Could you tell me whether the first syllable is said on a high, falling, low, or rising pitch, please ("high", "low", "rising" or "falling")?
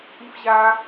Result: high